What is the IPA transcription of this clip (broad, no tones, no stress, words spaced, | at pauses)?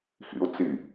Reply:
xḭʊ̯t͡si